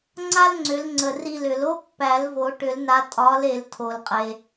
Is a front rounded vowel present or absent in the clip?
present